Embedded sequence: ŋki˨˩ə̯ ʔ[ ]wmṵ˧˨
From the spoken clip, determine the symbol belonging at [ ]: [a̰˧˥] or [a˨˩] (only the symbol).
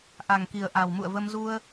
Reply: a˨˩